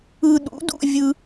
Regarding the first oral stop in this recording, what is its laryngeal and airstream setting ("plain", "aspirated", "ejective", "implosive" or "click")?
implosive